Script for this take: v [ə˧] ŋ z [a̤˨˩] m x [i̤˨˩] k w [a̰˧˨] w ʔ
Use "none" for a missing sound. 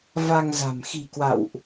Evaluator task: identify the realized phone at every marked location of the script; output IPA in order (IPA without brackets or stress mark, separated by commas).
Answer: a˧, a̤˨˩, i̤˨˩, a̰˧˨